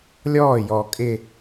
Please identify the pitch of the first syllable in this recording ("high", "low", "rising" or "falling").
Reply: falling